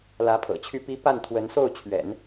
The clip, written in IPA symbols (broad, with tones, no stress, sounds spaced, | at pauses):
l ä˧˥ pʰ ɤ̰˨˩ t͡ɕʰ y˥˩ p i˥ p a˥˩ n t̪ʰ w ə˧˥ n s o˥˩ ʊ̯ t͡ɕʰ ɥ ɛ̰˨˩˦ n